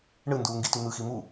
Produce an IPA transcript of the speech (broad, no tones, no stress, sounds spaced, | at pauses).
ɳ ɯ n d uː ŋ ɡ i t y n̪ ɯ x i m u